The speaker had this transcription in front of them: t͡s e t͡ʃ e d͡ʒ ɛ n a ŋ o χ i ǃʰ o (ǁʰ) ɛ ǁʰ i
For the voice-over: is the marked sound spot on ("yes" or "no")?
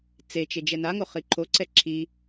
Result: no